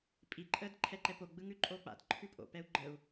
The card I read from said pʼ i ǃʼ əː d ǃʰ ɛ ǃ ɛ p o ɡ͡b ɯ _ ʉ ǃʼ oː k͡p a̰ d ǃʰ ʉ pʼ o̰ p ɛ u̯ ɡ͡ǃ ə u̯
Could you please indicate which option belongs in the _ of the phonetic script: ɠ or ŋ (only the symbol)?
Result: ŋ